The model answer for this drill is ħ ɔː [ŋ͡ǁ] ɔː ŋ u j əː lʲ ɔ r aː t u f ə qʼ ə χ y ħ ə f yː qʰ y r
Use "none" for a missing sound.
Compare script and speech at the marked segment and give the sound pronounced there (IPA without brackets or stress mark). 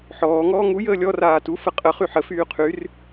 ŋ